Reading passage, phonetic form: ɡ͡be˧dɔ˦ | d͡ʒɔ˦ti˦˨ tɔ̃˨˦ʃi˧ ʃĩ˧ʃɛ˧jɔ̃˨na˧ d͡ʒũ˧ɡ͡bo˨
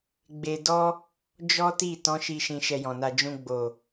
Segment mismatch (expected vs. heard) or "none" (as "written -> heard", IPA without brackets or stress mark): none